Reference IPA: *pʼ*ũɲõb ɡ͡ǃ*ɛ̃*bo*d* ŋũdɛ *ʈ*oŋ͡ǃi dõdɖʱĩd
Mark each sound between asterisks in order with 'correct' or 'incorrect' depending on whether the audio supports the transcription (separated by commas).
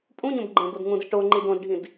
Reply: correct, incorrect, correct, correct